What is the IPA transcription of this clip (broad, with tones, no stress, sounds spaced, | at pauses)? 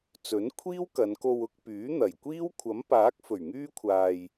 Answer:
t͡s ɵ˨˥ n kʷʰ iː˥ w k ɐ˨˧ n k o˧ w ʊ˧ k̚ p yː˨˥ n̪ ɐ˨˩ j kʷ iː˥ w kʷʰ ɐ˨˥ m p aː˨˥ k̚ f ɵ˨˩ ɥ ŋ yː˥ kʷʰ aː˧ j